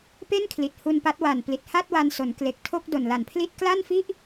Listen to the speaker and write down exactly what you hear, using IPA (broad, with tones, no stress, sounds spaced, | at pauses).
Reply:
p e˥˩ n kʰ l i˨˩ t̚ h u˧ n p a˦˥ t̚ w a˨˩ n p l i˨˩ t̚ h a˥˩ t̚ w a˧ n s o˩˦ n k l e˨˩ k̚ tʰ o˥˩ k̚ d o˨˩ n l a˨˩ n pʰ l i˥˩ t̚ k l a˥˩ n f i˥˩ ʔ